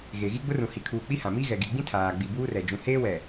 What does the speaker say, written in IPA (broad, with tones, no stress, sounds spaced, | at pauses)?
ɣ e˨ ɣ i˦ ɡ͡b ʊ˦ r ũ˨ h i˨ kʰ uː˨ k͡p i˦ h ã˨ m i˦ ɣ ɛ˨ ɡ i˨ ɡ͡b ĩ˦ tʰ aː˨ ɡ͡b i˨ b uː˦ r ɛ˨ d͡ʒ ũ˨ h eː˦ w ɛ˨